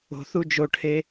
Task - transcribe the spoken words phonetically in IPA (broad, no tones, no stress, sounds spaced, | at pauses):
o̤ θ u d͡ʒ o ʈʰ e